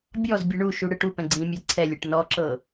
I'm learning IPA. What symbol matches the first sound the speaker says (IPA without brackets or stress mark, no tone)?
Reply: bʲ